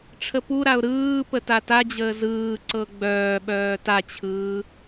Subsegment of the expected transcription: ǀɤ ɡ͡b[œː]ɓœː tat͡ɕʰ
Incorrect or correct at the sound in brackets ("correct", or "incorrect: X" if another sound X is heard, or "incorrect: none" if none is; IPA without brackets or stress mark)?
correct